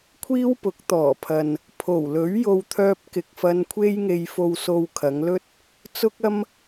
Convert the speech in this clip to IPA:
kʷʰ iː˥ w p ʊ˨˥ k̚ t̪ ɔː˨˩ pʰ ɐ˨ n | pʰ o˨˩ w l ɵ˨˥ ɥ j o˧ w t̪ʰ œː˧ p̚ k ɪ˨ k̚ f ɐ˧ n kʷʰ e˥ j ŋ e˧ j f o˨ w s o˨ w kʰ ɐ˨˧ ŋ l ɵ˥ t̚ | t͡s ʊ˥ k̚ ɐ˥ m

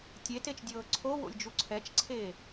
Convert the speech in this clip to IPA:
tʲ e t e t͡ʃ dʲ ɤː ǀʰ o w o̰ lʲ d͡ʒ u ǀʰ ɛ t͡ʃ ǀʰ eː

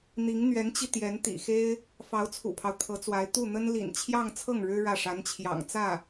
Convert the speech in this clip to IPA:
n̪ i˧˥ ŋ n̪ ɥ ɛ˧˥ n t͡ɕ i˧ t̪ j ɛ˧˥ n t̪ ḭ˨˩ x e˥ ɪ̯ | f ɑ˧˥ ʊ̯ t͡sʰ ṵ˨˩ pʰ ɑ˦ ʊ̯ t̪ʰ ɤ˧˥ t͡s w a˧˥ ɪ̯ t̪ u˥˩ n̪ ə˥ n l ḭ˨˩ n t͡ɕʰ j ɑ˥˧ ŋ t͡sʰ ɤ˥˩ ŋ ɻ ɻ̩˥ ɻ ä˥˩ ʂ a˧˥ n t͡ɕʰ j ɑ̰˨˩ ŋ t͡s ä˥˩

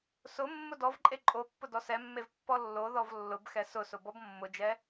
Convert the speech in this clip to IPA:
s ʊ mː ʊ d ɔ v ǃʼ e ǃʼ o pː ʊ d ɔ s ɛ mː e v pː ɔ lː o ð ɔ v lː ʊ b x ɛ s ʊ s ʊ b ɔ b mː ʊ d͡ʒ ɛ

